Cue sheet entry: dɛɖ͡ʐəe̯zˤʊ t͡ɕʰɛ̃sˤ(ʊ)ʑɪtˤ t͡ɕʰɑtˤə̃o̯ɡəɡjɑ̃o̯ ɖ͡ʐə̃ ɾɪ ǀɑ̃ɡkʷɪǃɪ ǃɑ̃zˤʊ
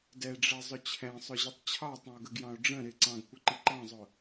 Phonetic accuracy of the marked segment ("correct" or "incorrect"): correct